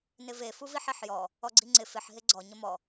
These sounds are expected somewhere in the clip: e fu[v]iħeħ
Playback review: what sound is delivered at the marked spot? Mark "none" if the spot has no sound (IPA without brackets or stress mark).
v